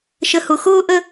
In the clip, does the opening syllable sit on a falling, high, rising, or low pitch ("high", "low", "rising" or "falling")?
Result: low